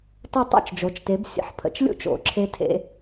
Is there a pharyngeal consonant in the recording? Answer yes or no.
yes